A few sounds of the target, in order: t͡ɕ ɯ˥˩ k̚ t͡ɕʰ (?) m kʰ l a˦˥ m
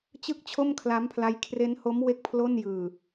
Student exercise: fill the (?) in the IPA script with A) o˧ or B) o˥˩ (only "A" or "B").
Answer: B